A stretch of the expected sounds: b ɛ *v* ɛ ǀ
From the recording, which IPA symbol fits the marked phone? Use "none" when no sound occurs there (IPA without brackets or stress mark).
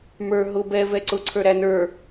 v